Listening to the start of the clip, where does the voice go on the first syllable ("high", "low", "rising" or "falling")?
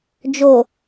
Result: low